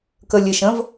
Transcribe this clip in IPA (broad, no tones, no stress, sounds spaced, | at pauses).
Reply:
k ə lʲ e ʃ ə̃ v